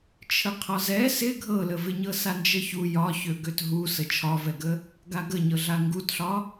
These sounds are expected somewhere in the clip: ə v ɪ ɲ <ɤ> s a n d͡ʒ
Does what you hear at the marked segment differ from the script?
no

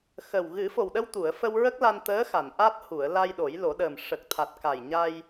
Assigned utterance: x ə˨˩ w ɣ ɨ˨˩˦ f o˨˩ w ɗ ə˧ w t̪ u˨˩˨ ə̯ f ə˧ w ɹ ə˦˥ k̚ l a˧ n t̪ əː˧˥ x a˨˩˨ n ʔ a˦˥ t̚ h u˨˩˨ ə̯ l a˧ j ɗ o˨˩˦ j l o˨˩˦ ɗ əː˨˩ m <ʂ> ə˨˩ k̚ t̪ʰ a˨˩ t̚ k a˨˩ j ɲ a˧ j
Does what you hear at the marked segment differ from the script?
no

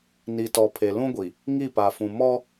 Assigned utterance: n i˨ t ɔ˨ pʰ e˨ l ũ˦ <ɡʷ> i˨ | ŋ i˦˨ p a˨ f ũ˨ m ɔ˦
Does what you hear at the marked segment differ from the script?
no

